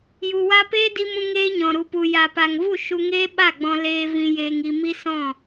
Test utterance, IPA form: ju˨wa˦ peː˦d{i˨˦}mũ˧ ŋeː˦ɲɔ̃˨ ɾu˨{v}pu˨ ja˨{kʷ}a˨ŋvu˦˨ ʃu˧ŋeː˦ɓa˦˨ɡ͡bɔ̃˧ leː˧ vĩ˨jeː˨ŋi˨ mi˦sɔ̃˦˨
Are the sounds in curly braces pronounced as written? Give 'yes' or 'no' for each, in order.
no, no, no

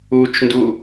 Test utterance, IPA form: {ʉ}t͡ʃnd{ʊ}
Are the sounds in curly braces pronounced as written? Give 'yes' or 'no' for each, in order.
no, no

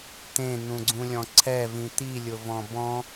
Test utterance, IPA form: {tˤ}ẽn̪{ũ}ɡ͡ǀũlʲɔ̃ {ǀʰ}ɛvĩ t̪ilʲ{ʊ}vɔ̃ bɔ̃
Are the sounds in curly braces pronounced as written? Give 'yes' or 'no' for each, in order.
no, yes, yes, yes

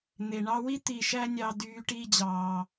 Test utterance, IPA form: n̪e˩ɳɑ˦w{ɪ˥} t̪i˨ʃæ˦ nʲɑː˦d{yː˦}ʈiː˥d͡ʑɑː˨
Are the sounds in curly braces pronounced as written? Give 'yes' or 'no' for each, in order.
no, yes

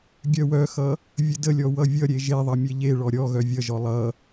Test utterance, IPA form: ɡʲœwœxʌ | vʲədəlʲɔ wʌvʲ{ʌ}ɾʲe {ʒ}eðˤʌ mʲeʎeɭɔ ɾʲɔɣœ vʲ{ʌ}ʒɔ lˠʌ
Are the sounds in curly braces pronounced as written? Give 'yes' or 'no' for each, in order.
yes, yes, yes

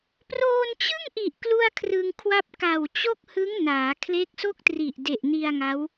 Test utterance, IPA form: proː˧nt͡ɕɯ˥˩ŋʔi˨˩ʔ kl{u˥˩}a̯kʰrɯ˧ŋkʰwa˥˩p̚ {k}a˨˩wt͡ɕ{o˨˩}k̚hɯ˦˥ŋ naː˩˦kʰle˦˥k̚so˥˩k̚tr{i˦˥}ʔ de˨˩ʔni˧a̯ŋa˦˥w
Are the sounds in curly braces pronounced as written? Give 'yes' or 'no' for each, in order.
yes, yes, no, no

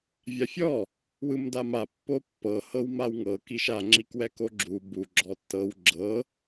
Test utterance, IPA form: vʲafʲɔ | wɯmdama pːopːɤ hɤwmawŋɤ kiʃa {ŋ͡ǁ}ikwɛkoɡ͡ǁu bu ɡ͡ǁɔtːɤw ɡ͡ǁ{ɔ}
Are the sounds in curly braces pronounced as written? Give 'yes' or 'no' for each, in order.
yes, no

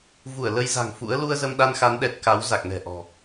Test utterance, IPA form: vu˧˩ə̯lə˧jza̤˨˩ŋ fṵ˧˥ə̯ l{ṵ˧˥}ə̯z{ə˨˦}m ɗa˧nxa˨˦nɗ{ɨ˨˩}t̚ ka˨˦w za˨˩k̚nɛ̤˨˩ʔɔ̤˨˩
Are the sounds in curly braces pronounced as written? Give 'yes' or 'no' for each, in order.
no, no, no

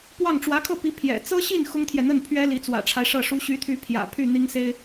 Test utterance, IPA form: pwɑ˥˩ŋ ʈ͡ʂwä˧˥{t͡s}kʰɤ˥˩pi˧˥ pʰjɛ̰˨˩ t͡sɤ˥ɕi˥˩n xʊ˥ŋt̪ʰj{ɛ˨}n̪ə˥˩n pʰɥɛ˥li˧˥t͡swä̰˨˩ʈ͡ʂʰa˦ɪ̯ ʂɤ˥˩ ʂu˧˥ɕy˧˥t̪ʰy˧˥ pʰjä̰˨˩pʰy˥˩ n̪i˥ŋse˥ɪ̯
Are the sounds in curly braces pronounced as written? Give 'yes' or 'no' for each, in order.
no, yes

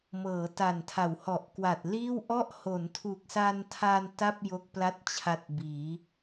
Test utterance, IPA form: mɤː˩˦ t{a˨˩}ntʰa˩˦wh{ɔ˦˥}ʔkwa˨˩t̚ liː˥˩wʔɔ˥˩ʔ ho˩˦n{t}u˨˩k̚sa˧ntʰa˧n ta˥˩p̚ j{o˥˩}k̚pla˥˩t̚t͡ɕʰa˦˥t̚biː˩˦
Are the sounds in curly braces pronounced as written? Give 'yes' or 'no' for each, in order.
yes, no, no, yes

